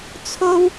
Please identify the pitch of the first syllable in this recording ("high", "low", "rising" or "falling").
high